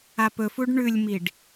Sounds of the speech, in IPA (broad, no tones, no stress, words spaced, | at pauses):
apɵfuɖ ɳʉlʲmiɖ